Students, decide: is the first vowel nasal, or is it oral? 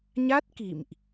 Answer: oral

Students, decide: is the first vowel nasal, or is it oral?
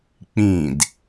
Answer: nasal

